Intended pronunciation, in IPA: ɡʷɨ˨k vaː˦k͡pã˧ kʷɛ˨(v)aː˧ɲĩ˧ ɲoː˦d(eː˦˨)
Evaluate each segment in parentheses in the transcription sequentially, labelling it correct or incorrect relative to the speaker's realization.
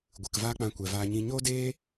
correct, incorrect

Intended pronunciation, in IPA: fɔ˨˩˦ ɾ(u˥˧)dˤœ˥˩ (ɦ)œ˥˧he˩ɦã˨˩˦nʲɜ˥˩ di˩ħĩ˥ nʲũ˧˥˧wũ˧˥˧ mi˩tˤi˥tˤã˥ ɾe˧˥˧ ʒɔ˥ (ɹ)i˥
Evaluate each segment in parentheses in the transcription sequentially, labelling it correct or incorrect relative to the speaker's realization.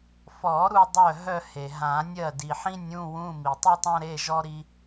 correct, correct, incorrect

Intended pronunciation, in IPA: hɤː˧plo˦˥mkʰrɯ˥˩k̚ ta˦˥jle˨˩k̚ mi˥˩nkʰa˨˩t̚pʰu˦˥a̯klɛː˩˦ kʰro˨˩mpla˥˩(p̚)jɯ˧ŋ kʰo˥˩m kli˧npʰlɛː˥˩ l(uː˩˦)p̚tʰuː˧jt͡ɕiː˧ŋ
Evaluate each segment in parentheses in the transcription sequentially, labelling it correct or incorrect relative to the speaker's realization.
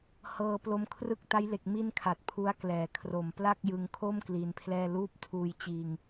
incorrect, incorrect

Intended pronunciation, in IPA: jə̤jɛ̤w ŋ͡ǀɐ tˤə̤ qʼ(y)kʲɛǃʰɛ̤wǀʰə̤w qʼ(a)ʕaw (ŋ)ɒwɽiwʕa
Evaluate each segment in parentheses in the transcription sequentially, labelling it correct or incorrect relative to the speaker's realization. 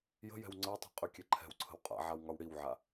correct, incorrect, correct

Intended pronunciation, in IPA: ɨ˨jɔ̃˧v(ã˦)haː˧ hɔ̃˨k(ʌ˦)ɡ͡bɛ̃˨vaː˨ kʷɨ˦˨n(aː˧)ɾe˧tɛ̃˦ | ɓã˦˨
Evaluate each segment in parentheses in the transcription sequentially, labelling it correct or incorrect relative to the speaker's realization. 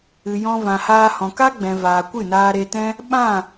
incorrect, incorrect, correct

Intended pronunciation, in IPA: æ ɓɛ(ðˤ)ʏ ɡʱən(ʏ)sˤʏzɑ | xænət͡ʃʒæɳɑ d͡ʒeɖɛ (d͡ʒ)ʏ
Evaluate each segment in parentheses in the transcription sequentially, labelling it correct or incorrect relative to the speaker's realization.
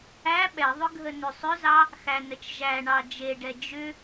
correct, correct, correct

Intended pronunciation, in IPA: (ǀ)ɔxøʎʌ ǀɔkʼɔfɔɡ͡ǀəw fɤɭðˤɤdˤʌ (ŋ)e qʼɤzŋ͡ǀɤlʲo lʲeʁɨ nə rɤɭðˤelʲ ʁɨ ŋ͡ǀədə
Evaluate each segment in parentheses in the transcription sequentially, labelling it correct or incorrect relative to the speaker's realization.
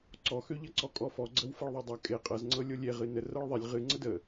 correct, incorrect

